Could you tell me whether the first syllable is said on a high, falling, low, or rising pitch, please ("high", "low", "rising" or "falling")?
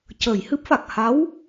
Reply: low